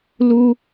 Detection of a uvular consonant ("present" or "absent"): absent